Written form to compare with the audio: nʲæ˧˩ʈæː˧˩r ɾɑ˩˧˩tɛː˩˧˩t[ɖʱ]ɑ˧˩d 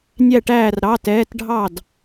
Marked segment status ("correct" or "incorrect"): correct